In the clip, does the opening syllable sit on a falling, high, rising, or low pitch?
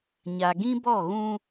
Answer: low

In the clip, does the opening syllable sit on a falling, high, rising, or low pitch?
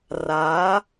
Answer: rising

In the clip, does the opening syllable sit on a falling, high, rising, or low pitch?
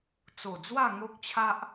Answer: low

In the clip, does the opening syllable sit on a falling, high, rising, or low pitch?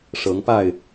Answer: rising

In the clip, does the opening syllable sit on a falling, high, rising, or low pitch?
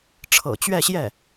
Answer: low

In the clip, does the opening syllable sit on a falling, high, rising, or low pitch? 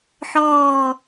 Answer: low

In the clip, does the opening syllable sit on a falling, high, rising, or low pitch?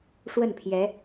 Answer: falling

